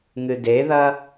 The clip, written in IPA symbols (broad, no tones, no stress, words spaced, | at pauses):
ŋɨdeðɐ